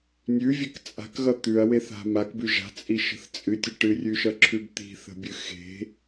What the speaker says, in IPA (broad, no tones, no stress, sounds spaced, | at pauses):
nʲ ʉ vʲ e k t͡sʼ a̤ k ɣ ʌ t̪ ʉ ɐ̯ w e θ a̤ m a k b ʉ ʒ a̤ t͡sʼ i ʃ ə̤ θ t͡sʼ ɨ tʲ ə ʈ ɨ rʲ ʉ ʃ ʌ ǁʰ ʉ b t̪ i̤ θ ə̤ bʲ ɨ x e̤